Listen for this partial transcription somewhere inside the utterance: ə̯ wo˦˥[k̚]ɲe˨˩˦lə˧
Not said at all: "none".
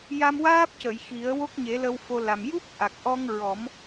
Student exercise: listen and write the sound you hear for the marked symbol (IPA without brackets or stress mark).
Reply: k̚